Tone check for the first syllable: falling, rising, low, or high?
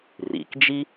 low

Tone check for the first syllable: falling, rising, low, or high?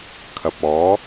low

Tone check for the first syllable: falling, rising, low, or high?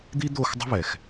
high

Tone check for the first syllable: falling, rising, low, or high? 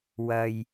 low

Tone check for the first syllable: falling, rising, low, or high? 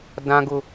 high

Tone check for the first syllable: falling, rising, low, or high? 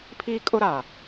high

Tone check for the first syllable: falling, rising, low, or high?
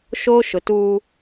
high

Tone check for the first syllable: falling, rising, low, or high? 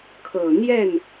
low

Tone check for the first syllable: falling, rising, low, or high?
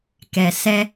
low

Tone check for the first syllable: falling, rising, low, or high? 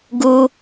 high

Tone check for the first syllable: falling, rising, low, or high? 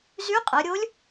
rising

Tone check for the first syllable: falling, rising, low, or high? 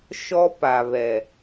high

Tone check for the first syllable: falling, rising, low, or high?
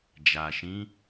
low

